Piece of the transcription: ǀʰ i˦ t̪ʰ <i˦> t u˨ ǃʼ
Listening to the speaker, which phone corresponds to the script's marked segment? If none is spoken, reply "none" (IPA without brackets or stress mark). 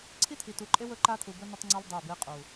i˨